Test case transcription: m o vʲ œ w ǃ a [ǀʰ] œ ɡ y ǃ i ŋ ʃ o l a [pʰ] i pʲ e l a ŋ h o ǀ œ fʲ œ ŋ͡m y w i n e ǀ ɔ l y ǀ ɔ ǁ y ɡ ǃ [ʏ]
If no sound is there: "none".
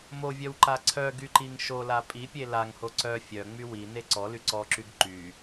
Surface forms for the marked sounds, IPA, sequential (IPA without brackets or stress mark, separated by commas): ǀʰ, pʼ, y